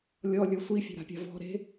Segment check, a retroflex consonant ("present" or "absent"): absent